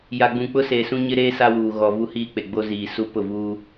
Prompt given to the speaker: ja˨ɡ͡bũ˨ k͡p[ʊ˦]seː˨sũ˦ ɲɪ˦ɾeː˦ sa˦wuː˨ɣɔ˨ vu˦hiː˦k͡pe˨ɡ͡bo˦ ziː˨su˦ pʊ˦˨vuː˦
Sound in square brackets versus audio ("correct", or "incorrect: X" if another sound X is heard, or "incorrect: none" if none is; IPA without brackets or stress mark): correct